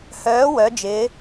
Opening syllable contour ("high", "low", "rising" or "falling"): rising